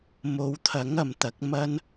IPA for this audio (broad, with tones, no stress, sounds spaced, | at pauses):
m o˨˧ w t̪ʰ ɐ˨˥ ŋ ɐ˨ m t̪ ɐ˨˥ k̚ m ɐ˥ n